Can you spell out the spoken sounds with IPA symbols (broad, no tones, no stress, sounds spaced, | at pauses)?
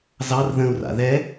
z ɑ r ð ə̃ u̯ r a̰ ð ɛ